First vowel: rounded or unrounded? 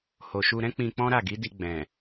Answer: rounded